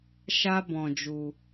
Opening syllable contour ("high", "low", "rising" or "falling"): high